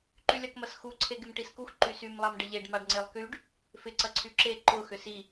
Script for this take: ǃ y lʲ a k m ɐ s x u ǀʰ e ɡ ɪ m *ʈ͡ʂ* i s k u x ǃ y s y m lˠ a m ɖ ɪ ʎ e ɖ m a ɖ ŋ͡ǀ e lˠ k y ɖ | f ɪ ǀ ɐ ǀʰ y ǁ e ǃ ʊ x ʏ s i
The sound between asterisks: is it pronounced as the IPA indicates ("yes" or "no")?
no